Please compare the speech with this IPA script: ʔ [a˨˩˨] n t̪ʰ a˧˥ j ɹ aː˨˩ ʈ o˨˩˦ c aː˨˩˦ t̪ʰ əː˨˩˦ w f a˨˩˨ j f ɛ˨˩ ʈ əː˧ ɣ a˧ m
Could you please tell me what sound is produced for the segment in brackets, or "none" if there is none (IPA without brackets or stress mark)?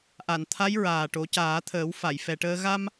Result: a˨˩˨